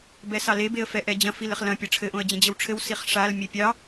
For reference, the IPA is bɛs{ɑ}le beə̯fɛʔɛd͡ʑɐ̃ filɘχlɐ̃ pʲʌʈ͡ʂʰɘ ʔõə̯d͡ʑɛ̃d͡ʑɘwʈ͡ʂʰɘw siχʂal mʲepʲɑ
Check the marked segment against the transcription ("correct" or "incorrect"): correct